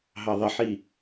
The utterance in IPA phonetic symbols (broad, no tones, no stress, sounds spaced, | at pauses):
ɦ ɑ ðˤ ə ħ i